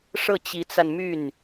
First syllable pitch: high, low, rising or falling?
falling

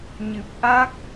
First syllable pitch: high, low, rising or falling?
low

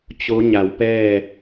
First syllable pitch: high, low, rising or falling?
rising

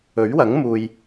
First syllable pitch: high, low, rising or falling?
rising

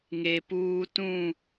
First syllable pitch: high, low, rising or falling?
low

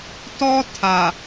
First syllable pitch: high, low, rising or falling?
high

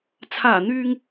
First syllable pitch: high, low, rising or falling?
low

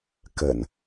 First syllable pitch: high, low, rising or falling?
low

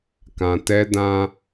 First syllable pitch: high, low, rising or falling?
low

